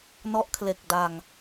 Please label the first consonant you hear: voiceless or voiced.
voiced